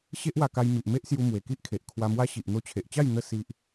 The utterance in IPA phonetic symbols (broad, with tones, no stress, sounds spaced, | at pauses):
ɕ e˦ ʔ w a˧ k a˧ j m i˨ ʔ m e˦ ʔ s j u˧ m w e˨˩ k i˦ ʔ kʰ e˨ ʔ kʰ w a˧ m w a˦ ɕ i˨ ʔ n̪ o˧ t͡ɕʰ e˨ ʔ t͡ɕ a˥˧ j n̪ ə˦ s i˦ ʔ